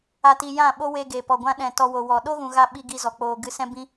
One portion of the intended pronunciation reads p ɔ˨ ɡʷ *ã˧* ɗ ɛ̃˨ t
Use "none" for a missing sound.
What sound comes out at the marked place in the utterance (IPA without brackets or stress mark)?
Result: ã˧